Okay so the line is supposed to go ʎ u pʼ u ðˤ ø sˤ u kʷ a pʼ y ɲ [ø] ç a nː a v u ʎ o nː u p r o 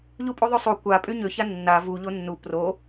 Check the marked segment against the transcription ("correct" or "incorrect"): correct